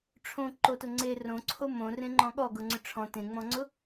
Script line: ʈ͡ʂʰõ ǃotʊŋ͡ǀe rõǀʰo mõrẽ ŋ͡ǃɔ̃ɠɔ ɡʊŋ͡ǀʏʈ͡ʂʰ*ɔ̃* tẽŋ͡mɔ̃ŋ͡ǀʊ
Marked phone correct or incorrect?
correct